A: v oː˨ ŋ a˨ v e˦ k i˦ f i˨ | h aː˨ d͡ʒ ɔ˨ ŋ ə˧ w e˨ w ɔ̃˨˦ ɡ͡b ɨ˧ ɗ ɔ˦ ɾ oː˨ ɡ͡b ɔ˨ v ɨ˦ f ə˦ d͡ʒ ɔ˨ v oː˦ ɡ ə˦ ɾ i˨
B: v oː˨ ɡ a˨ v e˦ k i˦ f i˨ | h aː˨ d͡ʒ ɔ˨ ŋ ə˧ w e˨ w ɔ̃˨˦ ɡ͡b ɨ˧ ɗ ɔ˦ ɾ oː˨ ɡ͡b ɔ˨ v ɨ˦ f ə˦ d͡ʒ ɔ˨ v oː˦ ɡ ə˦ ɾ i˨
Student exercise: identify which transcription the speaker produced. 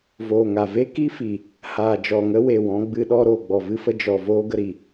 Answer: A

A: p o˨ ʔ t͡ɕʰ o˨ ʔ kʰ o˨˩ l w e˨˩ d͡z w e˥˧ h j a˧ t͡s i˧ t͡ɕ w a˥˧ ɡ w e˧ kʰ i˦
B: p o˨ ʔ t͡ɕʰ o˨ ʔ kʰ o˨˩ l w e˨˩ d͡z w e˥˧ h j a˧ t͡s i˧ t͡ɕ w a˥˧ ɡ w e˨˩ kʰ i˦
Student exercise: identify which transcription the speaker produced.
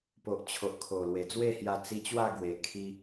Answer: B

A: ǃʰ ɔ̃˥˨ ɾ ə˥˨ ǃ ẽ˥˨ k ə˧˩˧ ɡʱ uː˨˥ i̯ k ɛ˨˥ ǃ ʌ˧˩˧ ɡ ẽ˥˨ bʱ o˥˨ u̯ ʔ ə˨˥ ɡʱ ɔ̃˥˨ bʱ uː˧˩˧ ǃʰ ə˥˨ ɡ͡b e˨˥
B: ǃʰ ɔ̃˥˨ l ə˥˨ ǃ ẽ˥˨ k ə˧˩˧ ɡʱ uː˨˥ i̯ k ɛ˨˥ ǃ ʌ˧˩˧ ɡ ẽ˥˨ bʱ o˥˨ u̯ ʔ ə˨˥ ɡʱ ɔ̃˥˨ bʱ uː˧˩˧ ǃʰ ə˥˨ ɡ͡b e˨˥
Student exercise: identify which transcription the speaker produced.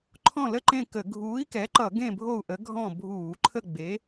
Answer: B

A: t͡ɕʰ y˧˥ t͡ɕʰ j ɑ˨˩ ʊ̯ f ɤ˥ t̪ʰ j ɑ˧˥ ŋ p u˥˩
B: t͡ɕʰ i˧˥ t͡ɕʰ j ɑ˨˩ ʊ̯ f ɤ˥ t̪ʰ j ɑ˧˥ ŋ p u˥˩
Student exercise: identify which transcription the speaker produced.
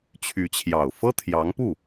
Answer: A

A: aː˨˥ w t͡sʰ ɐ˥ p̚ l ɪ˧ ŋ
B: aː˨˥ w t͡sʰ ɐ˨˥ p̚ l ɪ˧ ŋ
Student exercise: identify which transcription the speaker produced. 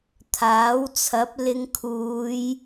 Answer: B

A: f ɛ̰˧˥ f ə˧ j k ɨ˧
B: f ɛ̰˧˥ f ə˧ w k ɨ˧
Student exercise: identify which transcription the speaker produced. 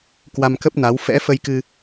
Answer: A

